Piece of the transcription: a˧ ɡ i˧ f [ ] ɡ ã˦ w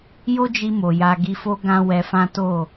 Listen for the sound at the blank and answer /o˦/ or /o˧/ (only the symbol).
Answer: o˦